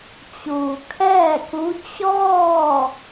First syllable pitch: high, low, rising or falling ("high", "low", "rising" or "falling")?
low